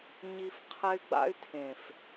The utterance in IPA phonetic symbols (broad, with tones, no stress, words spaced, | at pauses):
ɲi˧f qʰɛ˧y̯ɡ͡ba̰˧y̯tʰẽ˨f